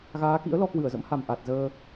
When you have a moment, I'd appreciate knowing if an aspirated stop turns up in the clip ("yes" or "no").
no